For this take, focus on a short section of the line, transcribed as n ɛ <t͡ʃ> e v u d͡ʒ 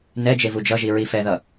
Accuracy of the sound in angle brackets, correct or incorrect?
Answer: incorrect